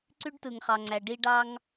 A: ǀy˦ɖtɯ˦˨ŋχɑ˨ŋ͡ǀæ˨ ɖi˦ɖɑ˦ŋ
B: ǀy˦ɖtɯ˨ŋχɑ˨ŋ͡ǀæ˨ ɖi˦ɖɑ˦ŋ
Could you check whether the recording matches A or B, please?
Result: B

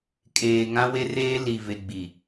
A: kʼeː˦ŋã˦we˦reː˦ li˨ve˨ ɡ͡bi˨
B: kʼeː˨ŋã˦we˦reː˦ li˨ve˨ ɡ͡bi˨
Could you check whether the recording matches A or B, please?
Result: B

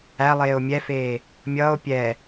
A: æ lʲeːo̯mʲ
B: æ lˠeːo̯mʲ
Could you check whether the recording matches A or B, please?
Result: B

